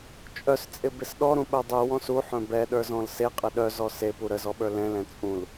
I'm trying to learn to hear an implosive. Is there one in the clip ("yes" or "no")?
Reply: yes